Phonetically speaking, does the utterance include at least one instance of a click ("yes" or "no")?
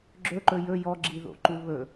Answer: yes